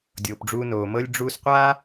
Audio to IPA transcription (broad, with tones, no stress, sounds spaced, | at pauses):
dʲ oː˨ p ɖ͡ʐ uː˧ n oː˨ m ɤ˦ lʲ ɖ͡ʐ uː˧ s qʷ aː˦